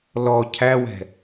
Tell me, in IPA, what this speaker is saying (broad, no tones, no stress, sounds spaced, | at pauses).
l ɔ cʰ æ w ɛ̤